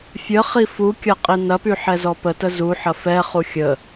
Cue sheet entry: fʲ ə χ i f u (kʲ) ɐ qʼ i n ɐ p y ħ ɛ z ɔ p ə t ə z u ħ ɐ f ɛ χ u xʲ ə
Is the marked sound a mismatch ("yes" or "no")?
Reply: no